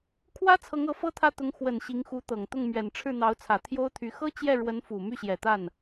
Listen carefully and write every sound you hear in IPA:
kʰ w ä˥ t͡sʰ ɤ˧˥ ŋ ɤ˧˥ f ɤ˥ t̪ʰ ä˥˩ t̪ ʊ˧˥ ŋ x w ə˨˩ n ɕ i˧˥ ŋ x u˧˥ t̪ ɤ˨˩ ŋ t̪ ʊ˥˩ ŋ m ɥ ɛ˨˩ n ʈ͡ʂʰ ɻ̩˥˩ n̪ ɑ˧˥ ʊ̯ t͡sʰ ä˨˩ t̪ʰ j o˥ ʊ̯ t̪ʰ y˧˥ x ɤ˥ t͡ɕ j ɛ˥˩ ɻ w ə˧˥ n f u˨˩ m y˥˩ ɕ j ɛ˨˩ t̪ a˥˩ n

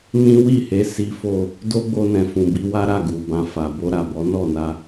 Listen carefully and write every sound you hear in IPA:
n ĩ˦ w i˦˨ h e˨˦ s i˦ f o˦˨ | d o˦ ɡ͡b o˧ n ɛ̃˨ f ũ˨ b i˧ w a˦ ɾ a˦˨ ɡ u˨ b ã˧ f a˨ b o˧ ɾ a˨ b ɔ˨˦ n ɔ˦˨ n a˧

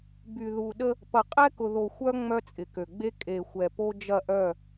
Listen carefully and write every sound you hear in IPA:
b y˨ ð u˨ ɗ ə˦ | p ɐ˨ qʼ ɛ˦ k ʊ˨ ð o˨ xʷ œ˦ ŋ͡m œ˦ t͡sʼ ɪ˨ k ø˨ ɡ͡b e˦ kʼ e˨ xʷ ɛ˨ p o˦ d͡ʒ ɐ˦˨ ʔ œ˦˨

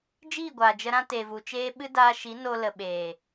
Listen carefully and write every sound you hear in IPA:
d͡ʒ iː˦˨ ɡʷ aː˨ d͡ʒ ə˧ ɾ ã˦ t e˨ v u˨ t͡ʃ eː˦ ɓ ɨ˦ d aː˧ ʃ i˨˦ n o˧ l ə˨ ɓ eː˨

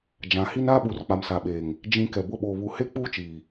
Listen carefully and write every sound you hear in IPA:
d͡ʒ ã˨˦ h i˦ n aː˦ ɓ u˨ r k͡p a˨ m s a˨ ɓ eː˨ ŋ | d͡ʒ ĩ˨ k ɛ˨ b ʊ˦˨ ɓ oː˨ β u˨˦ h e˦ k͡p uː˦ t͡ʃ iː˨

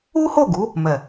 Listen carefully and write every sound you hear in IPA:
u˦ h o˦˨ ɡ u˨˦ | m ɛ˨

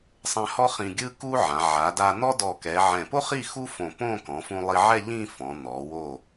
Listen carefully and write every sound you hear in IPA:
sˤ ɛ̃˧ h ɔ˥ χ ĩ˧ ɡʲ ɯ˥ k u˥ ʕ ã˩˧ ʕ a˩˧ d a˧ n̪ ɔ˥ d ɔ˧˩ k ɛ˩˧ ʕ ɛ̃˧˩ p o˥ χ i˥˧ x u˥ f õ˧˩ p õ˥˧ k ɔ̃˩˧ f ũ˧ lˠ i˧ ʕ ɛ˥˧ ʎ ĩ˥˧ f ɔ̃˩˧ n̪ ɔ˩˧ w o˧˩

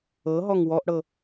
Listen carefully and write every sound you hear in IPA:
ɤ ɦ ɔ ŋ w ɔ ʔ ɽ ɤ

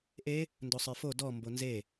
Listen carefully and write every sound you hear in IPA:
ʔ e | n d o sˤ ə˞ f o d ɔ m b o n z e

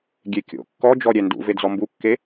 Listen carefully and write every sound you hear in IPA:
ɡʲ e kʲ o̰ kː ɔ d͡ʒ ɔ ɾʲ ɛ n d ṵ v e d͡z ɔ m b u kː e

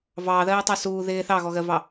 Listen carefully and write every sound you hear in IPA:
v ɑː ð ɜː tˤ ɑ s uː ð ɪː θ ɑ ɣ ɔ ɣ ɜ v ɑ

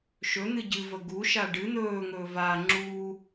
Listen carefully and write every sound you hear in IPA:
ʃ ɵ n̪ ɨ ɟ ɨ v ə ɡ u ʃ a ɖ ɨ n̪ ɵː ŋ ɵː v a ŋ͡ǁ u

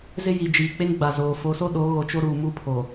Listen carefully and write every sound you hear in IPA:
z ɪ˦ j i˨ d͡ʒ iː˨ k͡p e˦ ŋ ɡ͡b a˨ z oː˨ f o˨˦ s o˦ ɗ o˨˦ ɣ o˨ t͡ʃ o˦ ɾ uː˨ m u˦ pʰ o˨

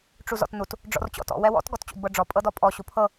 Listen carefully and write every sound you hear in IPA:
ʈ͡ʂ u z ɔ̰ t n u t | ɖ͡ʐ ɔ̰ r t͡ɕ ɔ̰ t ɔ̰ w ɛ w ɔ̰ t ɡ ɔ t t͡ɕ ṵ d b ɤ ɖ͡ʐ ɔ pʼ ɤ d ɔ pʼ ɔ ɕ u pʰ ɤ

